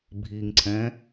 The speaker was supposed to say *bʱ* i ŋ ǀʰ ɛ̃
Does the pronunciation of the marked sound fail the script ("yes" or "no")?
no